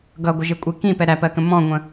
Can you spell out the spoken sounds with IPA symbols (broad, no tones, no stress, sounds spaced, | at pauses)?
ɡ ʌ ɡʷ ə ʒ ɪ kʷʼ i k ĩ p ɛ ɾ æ p ɜ k ə̃ m ɔ̃ ŋʷ ə̃